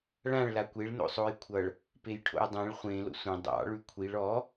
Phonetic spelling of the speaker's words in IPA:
ɭ ã ɭ l a kʷ e ɭ n o̰ sˤ o j kʷʰ ʌ ɭ | p e j ʈʰ o̰ j dˤ ẽ ɭ χʷ ẽ l o̰ sʷ ẽ dˤ ɑ̰ ɭ ʉ kʷʰ i ɭ ɔ

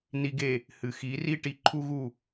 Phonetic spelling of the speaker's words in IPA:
n i˧ ɡ e˥˩ | h ɨ˩ x i˩˥ r i˥ ʈ i˧ ǃʰ u˥ ɣ u˥˩

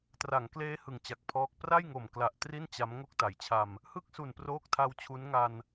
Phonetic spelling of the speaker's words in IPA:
t r a˩˦ ŋ k l eː˦˥ h ɯ˨˩ ŋ t͡ɕ a˨˩ k̚ pʰ ɔː˦˥ k̚ p r a˥˩ j ŋ o˨˩ m k l a˨˩ ʔ t r i˥˩ n t͡ɕ a˦˥ m ŋ o˥˩ k̚ t a˩˦ j t͡ɕʰ a˧ m | h ɯ˥˩ k̚ s u˨˩ n p r oː˦˥ k̚ tʰ a˦˥ w t͡ɕʰ u˦˥ n ŋ a˧ n

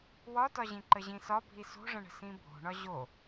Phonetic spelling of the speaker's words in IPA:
w ɒ t ɒ ʑ ĩ ǃ ə ʑ ĩ s ɒ bʱ i s o̤ ʐ ə̃ ɳ ə̤ s ĩ bʱ o̤ ɳ ɒ ʑ o

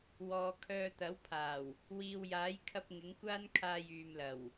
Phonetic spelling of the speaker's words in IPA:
w ɔː˨ kʰ œː˧ t̪ ɐ˨˥ w pʰ aː˨˩ w | w iː˨ w j aː˨˥ j kʰ ɐ˧ p̚ ŋ ɪ˨˥ ŋ kʷ aː˥ n kʰ aː˧ j yː˨ m l ɐ˨˩ w

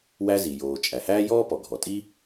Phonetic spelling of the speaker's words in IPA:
w æ˥ z i˩ j oː˩ t͡ʃʼ æ˩ h æː˥ j ɔː˥ p ɔ˩ ɡʱ ɔ˩ tʼ i˥

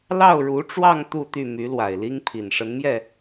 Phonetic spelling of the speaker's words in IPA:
l ɑ˥˩ ʊ̯ ɻ u˧˥ ʈ͡ʂ w ɑ˥˧ ŋ t̪ u˥˧ t̪ y˥˩ m y˧˥ l w a˨˩ ɪ̯ l i˥ ŋ pʰ i˨˩ n ʂ ə˧˥ n m j ɛ˥˩

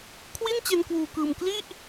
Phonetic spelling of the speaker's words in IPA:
kʰ w i˥˩ n t͡ɕ e˧ n k w uː˨˩ k ɯː˨˩ m k l i˥˩ ʔ

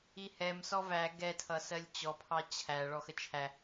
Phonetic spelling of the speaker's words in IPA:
i h ɛ m s ɔ v æ ɡ ɛ tʰ ʌ s ɜ lʲ t͡ɕ ɔ pʰ ɑ t͡ɕʰ æ ɭ ɔ x ə t͡ʃʰ æ

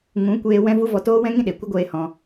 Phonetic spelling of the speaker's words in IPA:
ŋ ũ˨˦ kʷ eː˧ w ɛ̃˦ v u˦ v ɔ˧ t oː˦ w ɛ̃˦ ŋ ĩ˦ ɗ e˨ kʷ ə˦ ɡʷ eː˧ h ɔ̃˧

